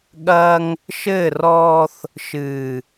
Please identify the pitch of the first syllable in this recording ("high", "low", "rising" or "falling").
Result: high